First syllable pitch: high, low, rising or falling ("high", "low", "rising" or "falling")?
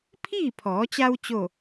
falling